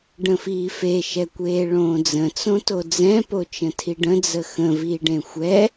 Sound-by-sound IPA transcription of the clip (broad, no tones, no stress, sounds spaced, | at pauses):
ɖ ə̃ f iː f e ʃ ɛ kʷ eː ɭ õː d͡z ə̃ t͡s õ t o d͡z ɛ̃ p o t͡ʃ ə̃ tʰ i ɖ ə̃ d͡z ə x ə̃ v iː ɖ ẽ xʷ ɛ